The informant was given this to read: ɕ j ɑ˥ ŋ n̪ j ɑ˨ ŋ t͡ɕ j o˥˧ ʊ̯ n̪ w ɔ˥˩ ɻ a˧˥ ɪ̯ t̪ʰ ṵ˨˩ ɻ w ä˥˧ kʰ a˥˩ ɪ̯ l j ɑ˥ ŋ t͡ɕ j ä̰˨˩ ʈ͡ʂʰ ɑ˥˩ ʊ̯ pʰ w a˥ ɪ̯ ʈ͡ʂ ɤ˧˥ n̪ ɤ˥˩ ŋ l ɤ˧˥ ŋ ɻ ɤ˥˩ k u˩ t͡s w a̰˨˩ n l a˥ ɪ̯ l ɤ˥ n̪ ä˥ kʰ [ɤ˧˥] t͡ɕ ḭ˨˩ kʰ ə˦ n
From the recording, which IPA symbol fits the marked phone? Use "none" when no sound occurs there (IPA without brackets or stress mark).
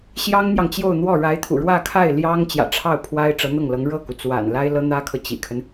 ɤ˨